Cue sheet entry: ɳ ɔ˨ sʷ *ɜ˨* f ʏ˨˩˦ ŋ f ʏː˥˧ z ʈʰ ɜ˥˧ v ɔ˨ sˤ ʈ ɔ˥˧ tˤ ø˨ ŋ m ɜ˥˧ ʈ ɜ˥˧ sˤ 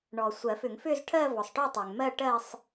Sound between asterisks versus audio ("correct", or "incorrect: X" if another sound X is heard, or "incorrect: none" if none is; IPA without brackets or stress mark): incorrect: ɜ˨˩˦